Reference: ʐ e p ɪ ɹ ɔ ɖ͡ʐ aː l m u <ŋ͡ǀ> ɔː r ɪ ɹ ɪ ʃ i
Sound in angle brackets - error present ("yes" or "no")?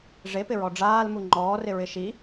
yes